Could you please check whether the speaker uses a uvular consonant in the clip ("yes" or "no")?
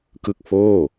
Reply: no